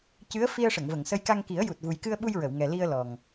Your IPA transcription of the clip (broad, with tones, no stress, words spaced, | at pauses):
cɨ˧˥ə̯ fi˧ə̯ʂə˨˩˨ŋvə˨˩˨ŋsə˧j ka˧ŋki˨˩˦ə̯ ju˨˩t̚vu˨˩jkɨ˧ə̯ɓu˧j ɹə˨˩˨wŋɛ˨˩li˧ə̯ lɔ˨˩ŋ